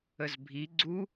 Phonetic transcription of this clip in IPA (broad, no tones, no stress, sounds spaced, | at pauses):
ə z bʱ i ɡ͡ǀ u